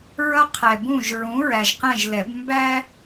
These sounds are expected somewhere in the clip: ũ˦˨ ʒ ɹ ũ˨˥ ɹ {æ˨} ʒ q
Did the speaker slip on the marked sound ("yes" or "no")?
no